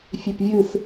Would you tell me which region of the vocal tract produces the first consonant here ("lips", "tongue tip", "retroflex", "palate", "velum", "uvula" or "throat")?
lips